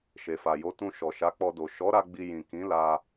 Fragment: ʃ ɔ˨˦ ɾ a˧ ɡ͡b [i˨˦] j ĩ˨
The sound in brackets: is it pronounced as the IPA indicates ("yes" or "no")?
no